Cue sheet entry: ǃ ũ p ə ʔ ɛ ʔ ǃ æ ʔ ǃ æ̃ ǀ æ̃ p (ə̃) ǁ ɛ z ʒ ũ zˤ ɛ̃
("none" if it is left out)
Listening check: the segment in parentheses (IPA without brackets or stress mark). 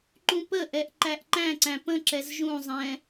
ə̃